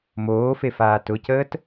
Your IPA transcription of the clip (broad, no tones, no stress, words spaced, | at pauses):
moːfe faːtʊcəːt